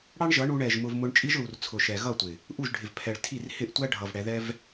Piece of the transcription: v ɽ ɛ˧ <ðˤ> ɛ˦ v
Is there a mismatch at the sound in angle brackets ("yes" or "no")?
yes